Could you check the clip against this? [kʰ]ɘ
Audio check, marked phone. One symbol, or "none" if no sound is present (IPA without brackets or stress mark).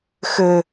x